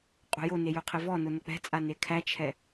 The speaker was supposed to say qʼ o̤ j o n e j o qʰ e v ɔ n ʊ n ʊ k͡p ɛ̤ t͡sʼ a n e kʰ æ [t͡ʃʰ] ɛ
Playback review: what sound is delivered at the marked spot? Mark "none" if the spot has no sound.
t͡ʃʰ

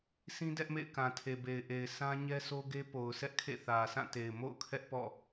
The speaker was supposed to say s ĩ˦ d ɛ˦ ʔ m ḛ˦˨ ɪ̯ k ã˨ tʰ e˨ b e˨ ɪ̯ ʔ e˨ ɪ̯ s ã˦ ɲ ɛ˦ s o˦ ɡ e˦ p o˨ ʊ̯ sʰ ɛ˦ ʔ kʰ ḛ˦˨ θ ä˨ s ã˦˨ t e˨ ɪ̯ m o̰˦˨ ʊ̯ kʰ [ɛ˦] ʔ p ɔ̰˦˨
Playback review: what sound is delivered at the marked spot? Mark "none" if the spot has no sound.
ɛ˦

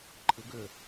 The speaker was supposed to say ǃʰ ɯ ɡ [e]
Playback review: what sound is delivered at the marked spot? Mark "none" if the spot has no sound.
ø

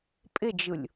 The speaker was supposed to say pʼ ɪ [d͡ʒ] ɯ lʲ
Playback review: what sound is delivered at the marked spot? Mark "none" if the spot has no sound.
d͡ʒ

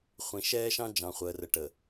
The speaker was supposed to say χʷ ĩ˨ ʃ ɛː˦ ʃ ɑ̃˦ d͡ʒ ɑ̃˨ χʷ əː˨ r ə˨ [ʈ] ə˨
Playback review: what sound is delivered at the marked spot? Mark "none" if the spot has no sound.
ʈ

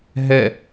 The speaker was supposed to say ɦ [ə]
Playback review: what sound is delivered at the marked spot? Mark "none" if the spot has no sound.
ɛ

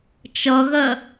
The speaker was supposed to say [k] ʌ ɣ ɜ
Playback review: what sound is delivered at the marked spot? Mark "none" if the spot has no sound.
t͡ʃ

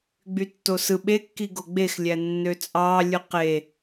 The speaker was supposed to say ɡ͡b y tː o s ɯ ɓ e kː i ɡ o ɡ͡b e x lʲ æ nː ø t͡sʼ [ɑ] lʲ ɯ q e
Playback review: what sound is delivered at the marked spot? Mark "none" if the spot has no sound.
ɑ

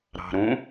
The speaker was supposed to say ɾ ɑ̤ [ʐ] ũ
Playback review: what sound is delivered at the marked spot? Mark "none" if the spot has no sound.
ɾ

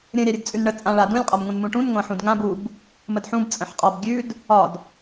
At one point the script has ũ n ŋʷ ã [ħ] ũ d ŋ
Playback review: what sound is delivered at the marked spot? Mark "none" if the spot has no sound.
ħ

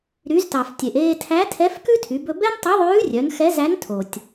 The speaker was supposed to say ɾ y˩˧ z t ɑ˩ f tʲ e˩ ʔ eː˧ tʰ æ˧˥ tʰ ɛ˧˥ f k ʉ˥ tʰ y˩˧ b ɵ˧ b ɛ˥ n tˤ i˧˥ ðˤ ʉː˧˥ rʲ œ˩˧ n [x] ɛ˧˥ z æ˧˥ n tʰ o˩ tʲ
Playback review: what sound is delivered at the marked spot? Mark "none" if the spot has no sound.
x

